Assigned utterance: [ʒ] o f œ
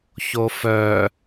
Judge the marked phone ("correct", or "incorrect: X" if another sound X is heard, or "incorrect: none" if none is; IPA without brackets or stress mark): incorrect: ç